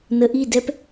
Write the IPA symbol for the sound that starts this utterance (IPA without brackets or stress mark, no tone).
n